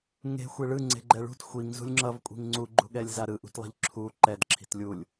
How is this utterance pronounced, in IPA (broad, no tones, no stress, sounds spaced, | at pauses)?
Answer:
ŋ e̤ xʷ e ɭ ɯ ŋ͡ǀ e̤ ɡ͡ǃ ɛ ɭ ṳ t xʷ i ŋ z ṳ lʲ ŋ͡ǁ ʌ v kʷʼ i̤ ŋ ŋ͡ǀ u ɡ͡ǃ ṳ ɠ ɛ lʲ z a ɾ ɯ ʔ ṳ t lˠ i̤ ʎ ǁʰ u ǃ ɛ d ǁʰ i̤ t lʲ u lʲ